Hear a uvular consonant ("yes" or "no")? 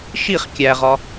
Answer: yes